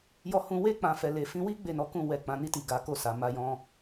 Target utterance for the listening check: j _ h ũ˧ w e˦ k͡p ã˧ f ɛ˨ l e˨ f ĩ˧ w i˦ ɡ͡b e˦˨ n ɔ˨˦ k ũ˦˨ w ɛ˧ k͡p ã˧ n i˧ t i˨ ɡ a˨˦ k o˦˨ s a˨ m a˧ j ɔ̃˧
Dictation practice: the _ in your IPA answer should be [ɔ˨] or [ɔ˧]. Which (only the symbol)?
ɔ˧